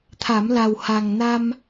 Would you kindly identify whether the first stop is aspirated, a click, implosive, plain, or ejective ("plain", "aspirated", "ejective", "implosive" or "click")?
aspirated